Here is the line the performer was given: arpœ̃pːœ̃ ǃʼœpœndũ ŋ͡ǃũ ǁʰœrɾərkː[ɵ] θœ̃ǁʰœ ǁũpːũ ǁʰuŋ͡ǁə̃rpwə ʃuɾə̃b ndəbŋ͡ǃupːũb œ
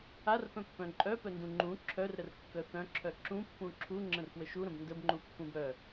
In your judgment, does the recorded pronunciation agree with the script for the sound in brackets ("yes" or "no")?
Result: no